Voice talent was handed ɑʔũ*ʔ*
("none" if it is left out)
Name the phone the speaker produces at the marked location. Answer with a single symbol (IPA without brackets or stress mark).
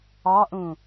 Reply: none